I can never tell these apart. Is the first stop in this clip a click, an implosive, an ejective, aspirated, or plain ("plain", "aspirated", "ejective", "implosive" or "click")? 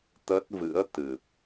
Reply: plain